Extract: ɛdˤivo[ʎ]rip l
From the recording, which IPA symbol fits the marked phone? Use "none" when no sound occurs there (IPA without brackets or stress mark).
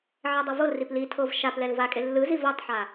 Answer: l